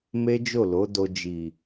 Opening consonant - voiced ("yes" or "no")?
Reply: yes